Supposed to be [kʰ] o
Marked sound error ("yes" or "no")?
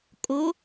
yes